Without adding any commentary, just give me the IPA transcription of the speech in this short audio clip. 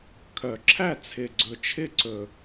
kʰ œ˨˩ ǁʰ æ˥˩ t͡sʰ ɪ˨˩ ɡ͡ǀ ɵ˨˩ t͡ʃʰ ɪ˥˩ ǀ ɵ˨˩

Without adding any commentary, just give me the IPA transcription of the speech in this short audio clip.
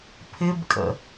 pʰ ɪ b kʼ ə̰

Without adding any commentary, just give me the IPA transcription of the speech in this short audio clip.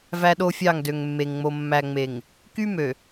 v æ˦ ɗ o˦ fʲ ɑ˦˨ ŋ d ø˨ ŋ mː e˨ ŋ ŋ͡m o˨ mː æ˨ ŋ͡m e˨ ŋ | k y˦ m ø˨

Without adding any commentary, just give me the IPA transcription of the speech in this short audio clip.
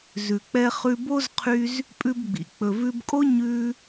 z ʉ˩ k͡p ɛ˧ χ ʉ˧ b o˥ z qʰ y˧ z | pʼ ʉ˧ b ɡ͡b ḭ˩ k͡p ɵ˩ v ʉ˧ b kʼ o˥ ɲ ʉ˧

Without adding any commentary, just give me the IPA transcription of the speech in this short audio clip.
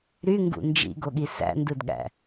ɾ y ŋ ɡ ṵ n d͡ʒ ḭ ɡ o ɠ i s æ̰ n d ɯ d ɠ æ̰

